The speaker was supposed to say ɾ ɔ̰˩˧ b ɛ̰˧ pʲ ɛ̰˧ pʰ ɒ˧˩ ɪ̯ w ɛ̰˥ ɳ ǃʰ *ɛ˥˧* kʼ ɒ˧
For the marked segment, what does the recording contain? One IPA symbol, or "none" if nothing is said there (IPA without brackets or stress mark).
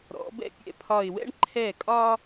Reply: ɛ˧˩